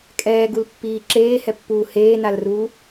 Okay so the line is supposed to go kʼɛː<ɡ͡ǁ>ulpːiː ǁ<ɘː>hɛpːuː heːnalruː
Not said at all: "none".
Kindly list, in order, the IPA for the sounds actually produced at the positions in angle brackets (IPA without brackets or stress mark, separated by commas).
ɡ, eː